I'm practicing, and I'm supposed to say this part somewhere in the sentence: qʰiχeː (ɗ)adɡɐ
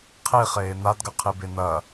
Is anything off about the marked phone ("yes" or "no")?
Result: yes